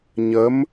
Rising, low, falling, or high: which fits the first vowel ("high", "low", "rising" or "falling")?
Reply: rising